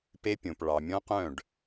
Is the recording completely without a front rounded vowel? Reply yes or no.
no